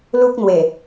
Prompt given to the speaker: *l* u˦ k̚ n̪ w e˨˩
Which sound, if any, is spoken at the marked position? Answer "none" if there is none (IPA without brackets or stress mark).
l